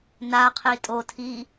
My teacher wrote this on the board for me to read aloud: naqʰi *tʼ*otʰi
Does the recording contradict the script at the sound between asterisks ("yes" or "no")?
no